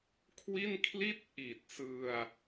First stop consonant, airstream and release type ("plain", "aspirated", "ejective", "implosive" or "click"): aspirated